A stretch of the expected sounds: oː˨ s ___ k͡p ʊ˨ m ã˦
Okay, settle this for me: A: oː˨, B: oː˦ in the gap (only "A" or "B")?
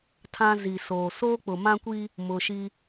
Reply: B